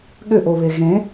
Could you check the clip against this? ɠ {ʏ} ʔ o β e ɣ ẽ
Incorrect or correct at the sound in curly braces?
correct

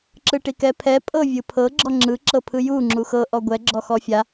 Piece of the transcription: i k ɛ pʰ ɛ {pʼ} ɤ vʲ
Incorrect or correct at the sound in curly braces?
correct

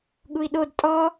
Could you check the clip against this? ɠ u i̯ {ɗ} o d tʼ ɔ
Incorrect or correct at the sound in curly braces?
correct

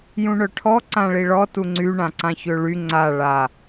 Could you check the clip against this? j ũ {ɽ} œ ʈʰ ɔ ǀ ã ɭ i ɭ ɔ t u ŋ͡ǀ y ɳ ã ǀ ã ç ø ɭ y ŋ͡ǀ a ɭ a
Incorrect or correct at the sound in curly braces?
incorrect: ɳ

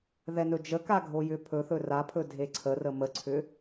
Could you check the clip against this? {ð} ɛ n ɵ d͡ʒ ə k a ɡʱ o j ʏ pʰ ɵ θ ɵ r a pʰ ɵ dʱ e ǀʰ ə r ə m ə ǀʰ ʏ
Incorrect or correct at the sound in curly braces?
correct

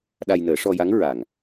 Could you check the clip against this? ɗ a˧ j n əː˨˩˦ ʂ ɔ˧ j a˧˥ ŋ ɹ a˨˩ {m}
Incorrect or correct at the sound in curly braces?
incorrect: ŋ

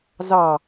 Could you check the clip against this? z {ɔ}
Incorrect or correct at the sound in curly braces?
incorrect: ɑ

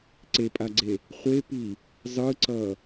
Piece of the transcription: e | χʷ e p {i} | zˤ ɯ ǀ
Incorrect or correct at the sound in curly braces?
correct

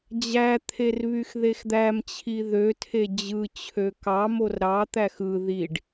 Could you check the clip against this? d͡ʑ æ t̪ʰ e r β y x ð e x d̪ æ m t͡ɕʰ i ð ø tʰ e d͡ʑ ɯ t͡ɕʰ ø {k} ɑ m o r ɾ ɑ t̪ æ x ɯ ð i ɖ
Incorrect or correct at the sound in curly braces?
correct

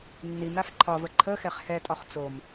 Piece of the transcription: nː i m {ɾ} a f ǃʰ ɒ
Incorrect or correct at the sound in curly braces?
correct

